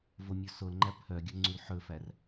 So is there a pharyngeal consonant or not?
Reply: yes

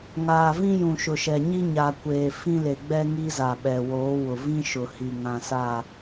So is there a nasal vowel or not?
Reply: yes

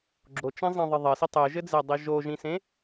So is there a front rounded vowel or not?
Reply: no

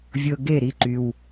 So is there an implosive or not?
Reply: no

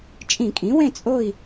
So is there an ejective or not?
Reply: yes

